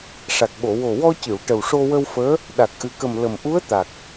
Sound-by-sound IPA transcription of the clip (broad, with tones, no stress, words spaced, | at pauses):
ʂa˨˩k̚ɓo˨˩˨ wo˨˩wɔ˧cɨ˨˩˨w ʈə˨˩wʂo˧wə˧wfəː˧˥ | ɗa˨˩k̚ʔɨ˨˩kə˨˩m lə˨˩m ʔu˧˥ə̯t̪a˨˩k̚